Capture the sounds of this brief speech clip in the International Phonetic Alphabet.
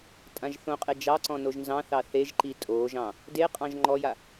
tʼ ã ʒ θ õ qʼ e d͡ʒ ɑ ǀ ɔ̃ n o ʒ n z ɑ̃ θ ɑ θ e ʒ ǃ i tʼ o ʒ ɑ̃ | d e qʼ ɑ̃ ʒ ŋ͡ǃ ɔ j a

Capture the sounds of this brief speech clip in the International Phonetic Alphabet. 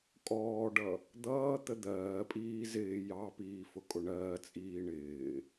kʼ ɔː ɖ ʌ | d̪ ʌː t̪ ə d̪ ɜː pʼ iː z ɪː j ɑ p iː f ʊ kʼ ʊ ɳ ɜː t͡sʼ iː ɳ ɪː

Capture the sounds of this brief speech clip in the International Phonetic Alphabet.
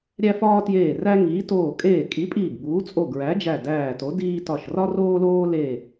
ɾʲ æ˦ f ɒː˦ t j eː˧˩ r æ˦ ŋ iː˨˥ t oː˧˩ kʼ eː˧˩ kʼ i˨˥ pʼ iː˧˩ ɡ b uː˨˥ t͡sʼ o˧˩ ɡ ɹ æ˨˥ d͡ʒ æ˧˩ d æː˧˩ t o˨˥ d iː˦ t ɒ˧˩ ʃ r ɒ˦ r oː˦ l oː˦ l e˧˩

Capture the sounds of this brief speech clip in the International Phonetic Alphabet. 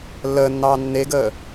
lː əː nː ɑː nː e ɡ əː

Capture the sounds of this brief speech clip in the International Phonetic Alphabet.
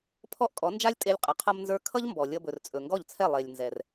pʰ ɔ˥ ʔ kʼ ɔ˩˥ n d͡ʒ a˥ lʲ tʼ e˧ lʲ qʼ ʌ˩ qʰ ʌ˧ m n z ə˞˧ kʰ ʌ˥ ʎ m b ɔ˩ lʲ ʌ˧ b ɵ˩ r t͡sʼ ɵ˩ ŋ ɡ ɔ˥˩ ʎ t͡sʰ ɛ˥˩ lˠ e˩ lʲ n z ɛ˩ r

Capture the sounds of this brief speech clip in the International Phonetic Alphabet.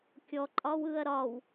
kʲ ɔ ǃʼ ɒ w ɯ ɐ̯ ɾ ɒ w

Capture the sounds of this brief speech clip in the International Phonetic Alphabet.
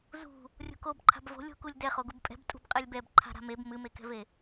z ṳ | rʲ o̤ k o b ǃʰ a̤ b v o̤ lʲ o̤ k u lʲ d ɛ χ o ɡ u b pʼ ɛ̤ b tʼ ṳ b qʼ ɛ lʲ b ɛ b ǃʰ a̤ ɾ a̤ m e b m ɨ m e k ɛ̤ v e

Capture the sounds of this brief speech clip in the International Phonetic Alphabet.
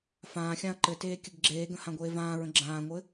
f ãː xʲ ã ɐ̯ ǃ ɘ t eː kʲ ɘ ɡ ɡ͡ǁ eː ɡ ə̃ h ã ɡʷ eː v ãː ɹ ə̃ ɡ͡ǁ ãː ŋʷ ɘ

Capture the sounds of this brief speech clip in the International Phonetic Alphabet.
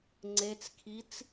ŋ͡ǀ e t͡s kʰ i t͡s

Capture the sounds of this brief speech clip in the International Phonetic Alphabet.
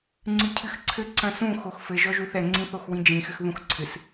ŋ͡ǀ ɨ cʰ ɨ x ǀʰ ɘ ǀ ɐ̃ s ũ x o x f ɘ ʒ ɔ ʒ u θ ɛ ŋ͡ǀ ĩ θ o x w ĩ d͡ʒ ĩ x ɘ x ð ũ x ǀʰ ɨ s

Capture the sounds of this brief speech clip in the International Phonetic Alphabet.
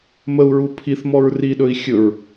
m ə u̯ ɹ u pʰ i θ m ɔ ɹ r i ɗ ɵ i̯ xʲ ɵ ɹ

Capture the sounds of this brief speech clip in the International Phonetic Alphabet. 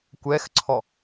kʷ ɛ x ǀʰ ɔ

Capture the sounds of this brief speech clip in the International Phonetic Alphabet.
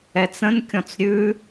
ɛ t͡s ə̃ n kʲ ɔ̃ t͡s ɾʲ ʉ

